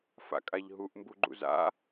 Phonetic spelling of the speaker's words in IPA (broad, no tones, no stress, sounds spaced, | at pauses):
f a̰ kʼ a ʎ ɦ u ʔ m b u ɡ͡ǃ ṵ z a̰